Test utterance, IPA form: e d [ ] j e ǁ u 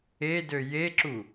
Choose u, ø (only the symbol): ø